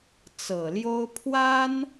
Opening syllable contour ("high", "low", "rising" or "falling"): low